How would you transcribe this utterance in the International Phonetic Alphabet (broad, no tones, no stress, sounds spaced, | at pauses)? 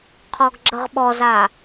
qʰ ɔ ɡ ɡ͡ǁ ə ʁ ɓ ɔ z a